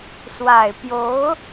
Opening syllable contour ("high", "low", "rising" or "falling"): low